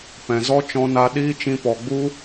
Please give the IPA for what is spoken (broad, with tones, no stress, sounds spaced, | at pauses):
p ɛ̃˨ z ɔ˦ t͡ʃ ɔ̃˦ n a˦ ɗ iː˦ t͡ʃ ĩ˧ p ɔ˨ ɡ͡b u˦